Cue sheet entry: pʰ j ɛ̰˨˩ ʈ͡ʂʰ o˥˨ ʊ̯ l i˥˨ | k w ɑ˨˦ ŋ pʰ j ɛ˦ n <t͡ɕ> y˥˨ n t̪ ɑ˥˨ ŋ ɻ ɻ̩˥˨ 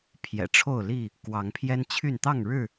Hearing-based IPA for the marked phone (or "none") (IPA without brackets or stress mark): t͡ɕʰ